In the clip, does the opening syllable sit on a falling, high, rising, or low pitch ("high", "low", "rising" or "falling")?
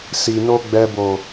low